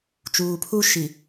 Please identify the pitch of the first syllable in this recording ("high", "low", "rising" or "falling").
low